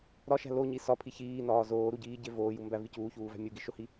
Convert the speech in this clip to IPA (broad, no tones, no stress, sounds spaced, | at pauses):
ɾ ɒ ʃ æ̤ l o ɲ i s ɒ pʰ i ç iː n ɒː z oː ɾ u ɟ iː ɟ e v oː j u m b æ v i c uː ç uː v æ̤ mʲ u ɡ i ʃ o h i